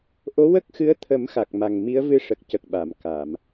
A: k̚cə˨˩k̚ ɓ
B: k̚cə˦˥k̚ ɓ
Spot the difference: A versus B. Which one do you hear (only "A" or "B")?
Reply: A